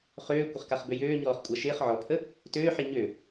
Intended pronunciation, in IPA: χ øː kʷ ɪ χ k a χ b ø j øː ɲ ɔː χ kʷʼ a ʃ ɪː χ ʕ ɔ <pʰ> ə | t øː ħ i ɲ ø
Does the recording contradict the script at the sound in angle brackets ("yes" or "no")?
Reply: no